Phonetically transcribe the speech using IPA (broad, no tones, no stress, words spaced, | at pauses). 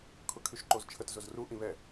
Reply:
kʰʊkʰyʃǃozt͡ʃʰət zʊzru ʔĩβɛ